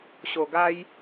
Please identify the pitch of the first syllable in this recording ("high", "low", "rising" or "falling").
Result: low